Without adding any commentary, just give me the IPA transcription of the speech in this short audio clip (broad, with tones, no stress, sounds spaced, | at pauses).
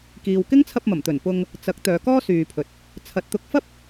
k iː˨ w k ɪ˥ ŋ t͡sʰ ɐ˧ p̚ m ɐ˨˩ m t̪ ɵ˨˩ n p ʊ˧ ŋ | t͡s ɐ˨˥ k̚ t̪ œː˨˧ k ɔː˥ s yː˨ pʰ ɵ˨ t̚ | t͡sʰ ɐ˧ t̚ t̪ ʊ˥ k̚ f ɐ˥ p̚